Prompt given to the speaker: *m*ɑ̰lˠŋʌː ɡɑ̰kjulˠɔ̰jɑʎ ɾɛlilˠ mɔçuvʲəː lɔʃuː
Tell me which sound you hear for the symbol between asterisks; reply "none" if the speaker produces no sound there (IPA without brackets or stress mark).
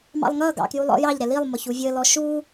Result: m